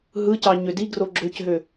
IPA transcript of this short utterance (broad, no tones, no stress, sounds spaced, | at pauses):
ɦ ɯ c ɑ ɲ ø d i ɡ r o ɡ͡ǁ ø c ɦ ø